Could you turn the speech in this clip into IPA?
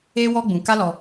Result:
e˦ w ɔ˦ ɡ͡b ũ˧ k a˦ l ɔ˧

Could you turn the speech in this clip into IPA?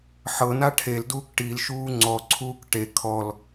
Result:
ħ ɤ n a ʈʰ e l d uː k ʈ i l ʃ uː ŋ͡ǀ ɔ ǀʰ uː k ʈ e kʰ ɔ l

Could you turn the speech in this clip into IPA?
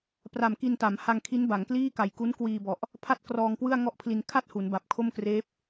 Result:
p r a˨˩ m k i˧ n t a˩˦ m h a˧ ŋ kʰ i˦˥ n b a˩˦ ŋ k l iː˥˩ k a˨˩ j k u˦˥ n k w iː˧ b ɔ˨˩ ʔ | pʰ a˥˩ t̚ k r ɔː˧ ŋ k w ɯ˥˩ a̯ ŋ ɔ˥˩ ʔ pʰ l i˧ n kʰ a˥˩ t̚ h u˩˦ n b a˨˩ p̚ kʰ o˥˩ m k r eː˦˥ p̚

